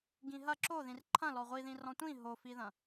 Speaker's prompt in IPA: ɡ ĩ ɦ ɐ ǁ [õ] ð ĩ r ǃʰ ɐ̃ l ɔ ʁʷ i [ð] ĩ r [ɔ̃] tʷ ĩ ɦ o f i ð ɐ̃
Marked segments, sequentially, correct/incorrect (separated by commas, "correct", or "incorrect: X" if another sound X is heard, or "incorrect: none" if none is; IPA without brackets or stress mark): incorrect: o, correct, correct